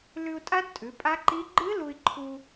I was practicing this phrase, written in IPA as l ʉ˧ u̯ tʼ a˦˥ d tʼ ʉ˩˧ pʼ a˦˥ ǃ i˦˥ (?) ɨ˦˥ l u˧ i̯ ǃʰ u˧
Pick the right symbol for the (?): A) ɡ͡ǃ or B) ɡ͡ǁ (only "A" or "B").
A